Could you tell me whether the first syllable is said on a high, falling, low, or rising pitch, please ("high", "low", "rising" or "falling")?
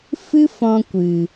high